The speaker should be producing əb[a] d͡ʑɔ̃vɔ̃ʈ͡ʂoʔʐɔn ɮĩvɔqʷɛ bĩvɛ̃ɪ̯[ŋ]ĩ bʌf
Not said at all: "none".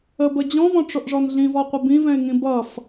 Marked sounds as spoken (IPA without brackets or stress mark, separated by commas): ə, ŋ